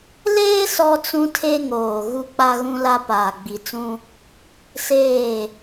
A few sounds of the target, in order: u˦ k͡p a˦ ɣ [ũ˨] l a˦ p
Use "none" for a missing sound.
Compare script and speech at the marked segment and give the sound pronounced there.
ũ˦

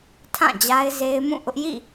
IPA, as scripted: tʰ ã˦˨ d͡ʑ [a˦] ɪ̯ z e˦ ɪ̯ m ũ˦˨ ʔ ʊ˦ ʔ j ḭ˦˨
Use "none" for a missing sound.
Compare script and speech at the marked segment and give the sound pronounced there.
a˦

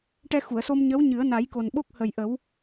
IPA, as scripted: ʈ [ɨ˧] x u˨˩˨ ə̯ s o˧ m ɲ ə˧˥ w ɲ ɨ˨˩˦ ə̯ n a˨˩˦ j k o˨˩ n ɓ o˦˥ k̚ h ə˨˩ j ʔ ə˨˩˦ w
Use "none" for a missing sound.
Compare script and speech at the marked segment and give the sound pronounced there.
ɛ˧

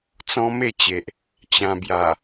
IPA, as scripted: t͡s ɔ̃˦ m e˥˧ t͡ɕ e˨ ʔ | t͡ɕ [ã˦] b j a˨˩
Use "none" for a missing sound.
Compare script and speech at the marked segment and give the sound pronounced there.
ã˧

